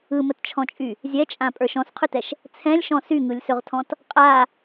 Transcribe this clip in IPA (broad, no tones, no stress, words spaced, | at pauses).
ɯmətt͡ʃʰɔ̃t͡ʃʼy | zʲɛt͡ʃʼãpʼə˞ʃ ɔ̃sqʰɵtɛʃ | t͡sʰɛ̃lʲʃɔ̃ syŋɯlʲsɵʁtʰɔ̃t | qʼa